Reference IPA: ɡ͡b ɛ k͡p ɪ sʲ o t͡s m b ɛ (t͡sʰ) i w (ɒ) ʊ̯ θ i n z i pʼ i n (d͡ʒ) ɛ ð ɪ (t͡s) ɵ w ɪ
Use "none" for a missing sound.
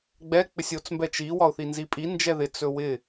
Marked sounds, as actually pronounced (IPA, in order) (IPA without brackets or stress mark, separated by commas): t͡ʃ, ɒ, d͡ʒ, t͡s